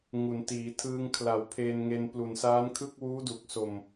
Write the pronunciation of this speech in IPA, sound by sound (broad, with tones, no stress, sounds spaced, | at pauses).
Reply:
ŋ u˩˦ n t iː˩˦ tʰ ɯː˧ ŋ kʰ l a˩˦ w pʰ eː˧ n ŋ e˧ n p l u˨˩ n s aː˦˥ n kʰ ɯ˥˩ k̚ w uː˦˥ d u˨˩ k̚ s o˨˩ m